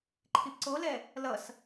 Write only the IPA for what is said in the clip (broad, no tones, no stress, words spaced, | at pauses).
ǃʰipǀolɛ | lʌs